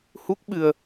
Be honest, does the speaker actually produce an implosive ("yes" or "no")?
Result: yes